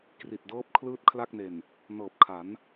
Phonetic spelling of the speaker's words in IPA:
k r i˨˩ t̚ d ɤː˦˥ p̚ kʰ l ɯː˥˩ t̚ kʰ l a˥˩ k̚ n e˨˩ n | n ɤː˨˩ p̚ kʰ a˩˦ n

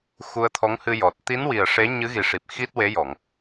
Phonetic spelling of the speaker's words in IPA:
x u˧ ə̯ t̪ʰ ɔ˧˥ ŋ h ɨ˧ j ɔ˨˩ t̚ t̪ i˧˥ n w i˨˩ ə̯ ʂ e˧˥ ɲ ɨ˧˥ ɣ i˨˩ ʂ i˨˩ p̚ x i˦˥ t̚ w e˧˥ j ɔ˨˩˨ ŋ

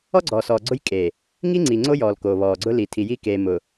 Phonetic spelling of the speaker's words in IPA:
ɔ˦ ɡ͡ǀ ɔ˨ s ɔː˨ ɡ͡ǀ ʊ˦ j kʼ e˨ | ŋ i˦ ŋ͡ǀ i˨ ŋ͡ǀ o˦ j ɔː˨ l k oː˨ β ɔː˨ ɡ͡ǀ ʊ˦ l i˨ tʰ i˨ j i˦ k e˨ m ʊ˨

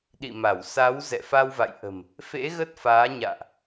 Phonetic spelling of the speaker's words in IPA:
ɗ ḭ˧˨ m a˧˩ w s a˨˦ w z ɛ̰˧˨ f a˧ w v a̰˧˨ j ʔ ə̤˨˩ m | f ḛ˧˥ ɣ ə˦˥ t̚ f aː˨˦ ɲ a̰ː˧˨ ʔ

